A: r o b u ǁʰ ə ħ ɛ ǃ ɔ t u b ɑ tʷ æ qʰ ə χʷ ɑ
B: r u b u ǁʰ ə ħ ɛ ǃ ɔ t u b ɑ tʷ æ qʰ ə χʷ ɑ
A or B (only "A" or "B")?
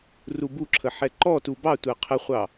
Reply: B